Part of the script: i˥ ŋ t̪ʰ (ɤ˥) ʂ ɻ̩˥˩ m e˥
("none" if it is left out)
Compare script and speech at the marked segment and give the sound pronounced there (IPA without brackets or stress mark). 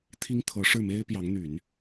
ɤ˧˥